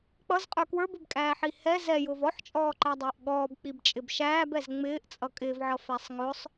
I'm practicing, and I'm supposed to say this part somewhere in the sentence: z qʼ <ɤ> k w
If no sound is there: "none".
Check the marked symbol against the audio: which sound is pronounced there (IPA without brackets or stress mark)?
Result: ə˞